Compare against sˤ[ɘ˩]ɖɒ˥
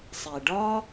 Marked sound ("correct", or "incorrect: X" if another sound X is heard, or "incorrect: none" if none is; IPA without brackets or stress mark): incorrect: e˩